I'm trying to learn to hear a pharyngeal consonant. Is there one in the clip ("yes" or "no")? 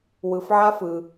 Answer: yes